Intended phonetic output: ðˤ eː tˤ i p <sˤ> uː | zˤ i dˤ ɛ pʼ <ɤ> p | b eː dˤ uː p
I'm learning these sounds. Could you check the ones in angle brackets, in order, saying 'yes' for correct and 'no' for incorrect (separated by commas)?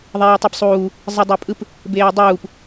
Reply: yes, no